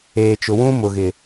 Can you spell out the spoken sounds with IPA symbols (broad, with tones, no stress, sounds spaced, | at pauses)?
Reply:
eː˨ t͡ʃ ʊ˨ w ũ˦ m ʊ˨ ɣ ɪ˨